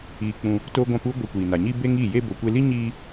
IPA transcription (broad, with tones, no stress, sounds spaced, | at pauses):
iː˧ k͡p ũ˧ | t o˧ ɡʷ ã˧ p u˦ ɡʷ ə˧ kʷ iː˨ n a˨ ɲ i˦ b e˦ ŋ iː˦˨ j e˦ b o˨ kʷ e˧ l i˦ ɲ iː˦